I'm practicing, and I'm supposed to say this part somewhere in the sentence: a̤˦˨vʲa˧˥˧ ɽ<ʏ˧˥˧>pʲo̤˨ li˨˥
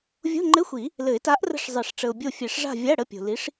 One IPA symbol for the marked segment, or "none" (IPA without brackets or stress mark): ə˧˥˧